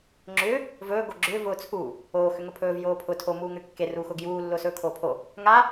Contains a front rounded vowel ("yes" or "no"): yes